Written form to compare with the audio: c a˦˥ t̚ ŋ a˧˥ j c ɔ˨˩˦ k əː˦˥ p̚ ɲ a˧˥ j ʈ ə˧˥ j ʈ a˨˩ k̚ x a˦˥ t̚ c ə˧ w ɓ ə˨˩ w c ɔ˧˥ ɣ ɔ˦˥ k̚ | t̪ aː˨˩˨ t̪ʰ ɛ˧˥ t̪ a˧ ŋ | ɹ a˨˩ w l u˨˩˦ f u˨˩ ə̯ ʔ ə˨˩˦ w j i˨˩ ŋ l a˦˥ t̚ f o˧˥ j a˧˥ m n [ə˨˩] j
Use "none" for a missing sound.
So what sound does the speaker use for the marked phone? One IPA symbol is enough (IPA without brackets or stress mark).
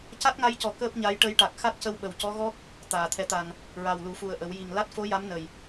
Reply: ə˨˩